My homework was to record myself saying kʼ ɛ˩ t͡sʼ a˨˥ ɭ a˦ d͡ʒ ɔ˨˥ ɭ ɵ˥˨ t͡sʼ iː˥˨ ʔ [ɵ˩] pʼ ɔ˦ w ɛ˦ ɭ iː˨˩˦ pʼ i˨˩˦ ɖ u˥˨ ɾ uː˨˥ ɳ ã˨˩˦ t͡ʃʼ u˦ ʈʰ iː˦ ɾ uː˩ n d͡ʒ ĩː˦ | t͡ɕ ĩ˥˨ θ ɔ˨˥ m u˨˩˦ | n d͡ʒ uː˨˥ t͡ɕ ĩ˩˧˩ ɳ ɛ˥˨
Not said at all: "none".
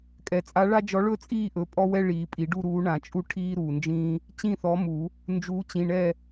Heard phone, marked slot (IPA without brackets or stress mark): ɵ˩˧˩